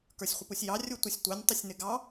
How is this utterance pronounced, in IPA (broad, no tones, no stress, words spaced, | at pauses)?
kə˞sʲχʷɪpusʲjɑ rʲutʷɪsʲtʷɛnʲ tˤɪsʲnɪɡɑ